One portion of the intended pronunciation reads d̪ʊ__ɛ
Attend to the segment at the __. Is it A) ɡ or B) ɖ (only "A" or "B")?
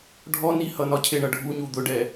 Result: B